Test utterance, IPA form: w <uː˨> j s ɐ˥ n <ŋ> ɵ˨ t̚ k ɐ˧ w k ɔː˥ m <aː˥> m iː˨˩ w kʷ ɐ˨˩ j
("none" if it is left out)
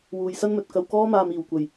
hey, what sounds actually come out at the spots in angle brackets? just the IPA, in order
uː˨, m, aː˨

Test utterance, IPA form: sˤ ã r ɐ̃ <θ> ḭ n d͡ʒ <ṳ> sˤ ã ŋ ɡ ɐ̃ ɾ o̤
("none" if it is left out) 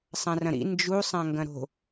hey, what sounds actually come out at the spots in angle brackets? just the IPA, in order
ɾ, u

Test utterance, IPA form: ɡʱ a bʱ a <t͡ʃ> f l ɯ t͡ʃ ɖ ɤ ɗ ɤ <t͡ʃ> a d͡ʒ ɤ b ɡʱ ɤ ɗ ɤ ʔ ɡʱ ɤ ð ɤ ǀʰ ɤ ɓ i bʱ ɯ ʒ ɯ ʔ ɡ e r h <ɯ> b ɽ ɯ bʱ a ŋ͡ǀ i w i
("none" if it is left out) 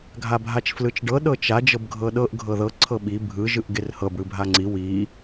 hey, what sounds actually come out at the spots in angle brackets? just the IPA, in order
t͡ʃ, t͡ʃ, ɤ

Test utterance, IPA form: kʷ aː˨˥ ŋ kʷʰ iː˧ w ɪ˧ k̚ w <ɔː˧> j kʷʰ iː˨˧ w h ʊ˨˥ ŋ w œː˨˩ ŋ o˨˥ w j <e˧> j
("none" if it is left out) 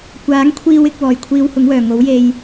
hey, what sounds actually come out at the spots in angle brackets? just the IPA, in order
ɔː˨˩, e˧

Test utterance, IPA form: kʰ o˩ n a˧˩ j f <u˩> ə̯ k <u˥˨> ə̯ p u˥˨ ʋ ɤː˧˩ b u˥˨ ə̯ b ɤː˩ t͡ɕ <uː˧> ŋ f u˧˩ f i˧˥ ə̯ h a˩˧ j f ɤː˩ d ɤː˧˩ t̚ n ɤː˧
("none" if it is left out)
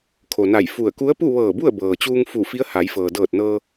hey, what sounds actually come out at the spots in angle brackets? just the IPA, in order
u˧˩, u˧˥, uː˧

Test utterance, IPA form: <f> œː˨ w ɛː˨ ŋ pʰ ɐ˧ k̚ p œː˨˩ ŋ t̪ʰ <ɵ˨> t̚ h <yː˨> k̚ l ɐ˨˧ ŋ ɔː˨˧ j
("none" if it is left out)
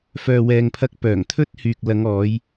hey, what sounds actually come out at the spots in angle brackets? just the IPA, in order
f, ɵ˥, yː˨

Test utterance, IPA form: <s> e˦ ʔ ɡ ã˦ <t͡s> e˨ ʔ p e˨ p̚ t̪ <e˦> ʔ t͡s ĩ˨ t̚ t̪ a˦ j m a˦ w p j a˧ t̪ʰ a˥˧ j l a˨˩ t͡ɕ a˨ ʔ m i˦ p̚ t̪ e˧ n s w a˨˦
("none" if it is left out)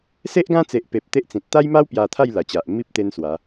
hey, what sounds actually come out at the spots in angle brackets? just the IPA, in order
s, t͡s, e˦

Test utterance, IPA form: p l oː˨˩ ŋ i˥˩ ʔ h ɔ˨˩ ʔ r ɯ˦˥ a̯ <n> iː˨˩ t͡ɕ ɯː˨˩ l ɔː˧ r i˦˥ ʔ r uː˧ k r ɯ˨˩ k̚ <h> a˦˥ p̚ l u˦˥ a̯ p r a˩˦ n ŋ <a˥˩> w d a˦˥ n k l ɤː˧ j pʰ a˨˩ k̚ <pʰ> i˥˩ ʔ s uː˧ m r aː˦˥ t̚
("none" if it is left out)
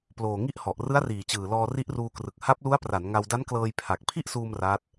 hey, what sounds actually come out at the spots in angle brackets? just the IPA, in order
r, h, a˧, pʰ

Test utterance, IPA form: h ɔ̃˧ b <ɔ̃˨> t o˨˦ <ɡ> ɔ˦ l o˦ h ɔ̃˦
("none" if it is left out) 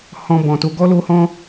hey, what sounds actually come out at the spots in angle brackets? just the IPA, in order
ɔ̃˨, ɡ

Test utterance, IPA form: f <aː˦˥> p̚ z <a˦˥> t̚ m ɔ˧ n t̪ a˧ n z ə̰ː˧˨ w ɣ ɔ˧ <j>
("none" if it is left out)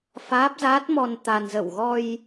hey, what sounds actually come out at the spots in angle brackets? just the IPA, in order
aː˦˥, aː˦˥, j

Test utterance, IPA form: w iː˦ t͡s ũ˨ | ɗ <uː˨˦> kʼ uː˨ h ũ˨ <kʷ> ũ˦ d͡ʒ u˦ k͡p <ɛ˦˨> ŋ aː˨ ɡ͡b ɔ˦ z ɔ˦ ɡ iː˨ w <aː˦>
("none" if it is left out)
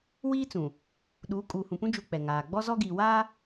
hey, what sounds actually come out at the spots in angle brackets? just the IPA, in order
uː˨˦, p, ɛ˨, aː˦

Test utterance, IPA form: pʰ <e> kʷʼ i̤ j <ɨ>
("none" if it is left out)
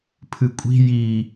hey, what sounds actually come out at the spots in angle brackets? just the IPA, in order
ɨ, i

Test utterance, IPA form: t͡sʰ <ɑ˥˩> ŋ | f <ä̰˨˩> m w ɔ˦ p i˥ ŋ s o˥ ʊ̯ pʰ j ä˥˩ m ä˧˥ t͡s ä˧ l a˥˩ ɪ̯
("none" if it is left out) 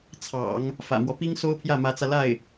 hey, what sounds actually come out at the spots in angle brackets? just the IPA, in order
ɑ̰˨˩˦, ä̰˨˩

